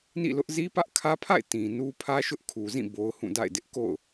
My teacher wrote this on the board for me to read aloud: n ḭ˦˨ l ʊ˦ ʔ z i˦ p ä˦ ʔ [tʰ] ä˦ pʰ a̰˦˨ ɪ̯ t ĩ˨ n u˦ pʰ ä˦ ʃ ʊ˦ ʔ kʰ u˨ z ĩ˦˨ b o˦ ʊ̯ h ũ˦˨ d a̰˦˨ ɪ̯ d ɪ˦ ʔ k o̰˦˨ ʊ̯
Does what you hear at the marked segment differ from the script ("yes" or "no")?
yes